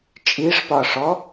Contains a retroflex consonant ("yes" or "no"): yes